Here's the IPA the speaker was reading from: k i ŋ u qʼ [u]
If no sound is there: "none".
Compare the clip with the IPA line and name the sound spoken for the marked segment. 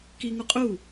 u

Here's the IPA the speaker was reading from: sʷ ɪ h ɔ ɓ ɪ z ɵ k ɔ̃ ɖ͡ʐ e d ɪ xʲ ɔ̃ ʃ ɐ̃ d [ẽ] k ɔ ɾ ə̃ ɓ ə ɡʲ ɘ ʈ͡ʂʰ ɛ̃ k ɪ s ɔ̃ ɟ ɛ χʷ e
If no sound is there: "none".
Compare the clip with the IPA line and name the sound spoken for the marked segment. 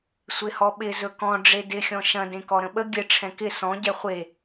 ẽ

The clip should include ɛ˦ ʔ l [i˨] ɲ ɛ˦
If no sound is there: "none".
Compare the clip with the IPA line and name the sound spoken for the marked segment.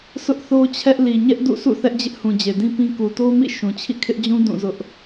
i˨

